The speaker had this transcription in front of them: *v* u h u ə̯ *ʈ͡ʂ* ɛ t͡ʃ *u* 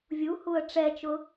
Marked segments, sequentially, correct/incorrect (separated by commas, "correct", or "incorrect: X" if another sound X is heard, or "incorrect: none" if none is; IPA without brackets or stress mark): incorrect: vʲ, correct, incorrect: ʊ